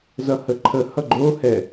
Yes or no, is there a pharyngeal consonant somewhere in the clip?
no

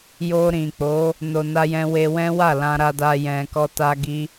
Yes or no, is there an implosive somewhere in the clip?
no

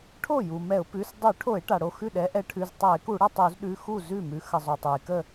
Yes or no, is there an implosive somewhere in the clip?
yes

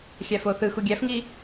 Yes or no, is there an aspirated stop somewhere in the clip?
no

